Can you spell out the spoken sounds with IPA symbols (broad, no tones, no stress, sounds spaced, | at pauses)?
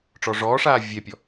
ʈ͡ʂ ɔ ʐ ɔː ʂ aː vʲ ɛ pʲ ɔ